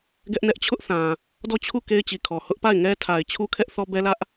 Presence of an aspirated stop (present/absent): present